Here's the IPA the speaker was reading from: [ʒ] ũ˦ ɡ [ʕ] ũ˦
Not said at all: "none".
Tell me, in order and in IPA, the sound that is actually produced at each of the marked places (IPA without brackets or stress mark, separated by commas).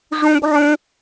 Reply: ʐ, ʕ